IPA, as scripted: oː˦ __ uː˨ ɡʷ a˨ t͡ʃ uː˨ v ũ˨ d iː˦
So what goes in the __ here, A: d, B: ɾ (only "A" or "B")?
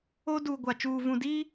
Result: A